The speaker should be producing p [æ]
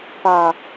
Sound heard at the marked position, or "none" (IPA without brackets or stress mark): a